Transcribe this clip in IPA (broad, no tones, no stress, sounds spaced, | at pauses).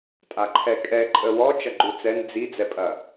tʼ a ǃʰ ɛ kʼ ɛ ǃʼ ə w ɔ t͡ʃ ɐ ɡ͡ǃ u t͡s ɛ n d͡z i d͡z ɛ pʼ ɐ